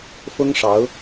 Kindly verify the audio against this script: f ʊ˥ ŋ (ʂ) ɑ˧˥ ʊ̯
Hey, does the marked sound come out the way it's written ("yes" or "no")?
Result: yes